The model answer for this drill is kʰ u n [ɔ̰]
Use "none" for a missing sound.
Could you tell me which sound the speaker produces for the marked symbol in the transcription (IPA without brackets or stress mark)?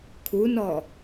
ɔ